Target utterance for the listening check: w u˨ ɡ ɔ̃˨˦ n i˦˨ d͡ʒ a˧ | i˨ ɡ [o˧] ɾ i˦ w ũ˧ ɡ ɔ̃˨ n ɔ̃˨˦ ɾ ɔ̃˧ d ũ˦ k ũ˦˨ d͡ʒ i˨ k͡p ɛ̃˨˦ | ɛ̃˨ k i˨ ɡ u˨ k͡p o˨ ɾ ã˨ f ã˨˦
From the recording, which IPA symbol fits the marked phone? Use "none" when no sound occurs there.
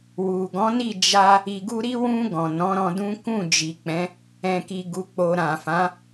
u˧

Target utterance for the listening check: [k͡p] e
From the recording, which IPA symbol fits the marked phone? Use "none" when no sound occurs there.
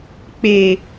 k͡p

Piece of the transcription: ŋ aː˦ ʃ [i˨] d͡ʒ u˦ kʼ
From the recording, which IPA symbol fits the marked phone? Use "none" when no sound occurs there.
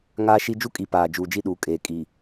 i˦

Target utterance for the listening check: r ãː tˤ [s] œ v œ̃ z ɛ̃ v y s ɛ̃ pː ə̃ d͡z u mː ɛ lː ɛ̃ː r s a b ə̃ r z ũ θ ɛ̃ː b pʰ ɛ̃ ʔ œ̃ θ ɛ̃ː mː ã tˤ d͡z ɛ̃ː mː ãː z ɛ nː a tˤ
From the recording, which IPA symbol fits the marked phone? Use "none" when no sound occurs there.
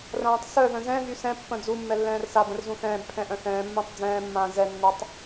s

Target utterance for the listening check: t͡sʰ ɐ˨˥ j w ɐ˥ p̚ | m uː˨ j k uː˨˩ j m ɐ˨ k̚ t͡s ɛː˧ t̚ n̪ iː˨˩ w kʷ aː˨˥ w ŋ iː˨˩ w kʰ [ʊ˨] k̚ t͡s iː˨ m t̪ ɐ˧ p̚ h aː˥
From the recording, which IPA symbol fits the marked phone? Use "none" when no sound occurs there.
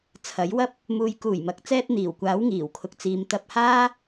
ʊ˨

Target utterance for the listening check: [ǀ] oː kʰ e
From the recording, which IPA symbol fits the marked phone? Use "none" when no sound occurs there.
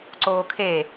ǀ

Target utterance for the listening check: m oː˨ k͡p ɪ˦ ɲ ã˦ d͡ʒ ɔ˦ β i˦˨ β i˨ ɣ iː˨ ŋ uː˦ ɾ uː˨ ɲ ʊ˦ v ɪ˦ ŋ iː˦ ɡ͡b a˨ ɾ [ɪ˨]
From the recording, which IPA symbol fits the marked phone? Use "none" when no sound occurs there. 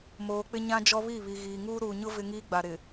ɪ˨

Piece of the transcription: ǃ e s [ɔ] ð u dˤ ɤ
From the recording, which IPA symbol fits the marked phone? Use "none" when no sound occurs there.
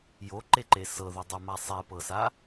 ɤ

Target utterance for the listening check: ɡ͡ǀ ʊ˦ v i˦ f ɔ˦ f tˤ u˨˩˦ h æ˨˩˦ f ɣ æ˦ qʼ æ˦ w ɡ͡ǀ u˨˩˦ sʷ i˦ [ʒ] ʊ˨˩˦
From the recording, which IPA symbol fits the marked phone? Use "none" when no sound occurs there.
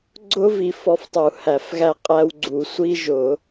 ʒ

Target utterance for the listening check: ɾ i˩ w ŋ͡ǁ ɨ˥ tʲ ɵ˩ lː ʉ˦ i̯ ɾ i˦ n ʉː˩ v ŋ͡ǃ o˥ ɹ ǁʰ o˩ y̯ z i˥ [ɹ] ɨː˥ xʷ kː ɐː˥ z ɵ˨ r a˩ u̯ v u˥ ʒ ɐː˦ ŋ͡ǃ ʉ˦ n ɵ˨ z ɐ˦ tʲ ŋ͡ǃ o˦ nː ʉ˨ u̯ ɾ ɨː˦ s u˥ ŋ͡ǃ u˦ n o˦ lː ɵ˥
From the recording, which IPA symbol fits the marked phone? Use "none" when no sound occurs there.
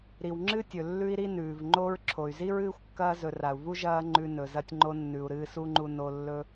ɹ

